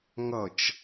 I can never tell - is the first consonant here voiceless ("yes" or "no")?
no